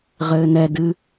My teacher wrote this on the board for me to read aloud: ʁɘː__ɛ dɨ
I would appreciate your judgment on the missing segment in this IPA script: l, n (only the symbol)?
n